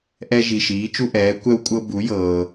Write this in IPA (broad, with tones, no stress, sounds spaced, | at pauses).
ʔ ɛ˥ ʒ i˧ ʃ iː˧˥ t͡ʃ u˥ ʔ ɛː˧˥ kʷ ɛ˥ w kʷʼ ɤ˥ b u˧˥ j ɤː˧